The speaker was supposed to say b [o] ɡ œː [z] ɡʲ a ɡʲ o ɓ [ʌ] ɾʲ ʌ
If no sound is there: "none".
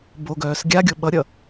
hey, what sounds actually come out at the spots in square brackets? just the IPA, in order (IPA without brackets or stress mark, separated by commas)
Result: o, s, ʌ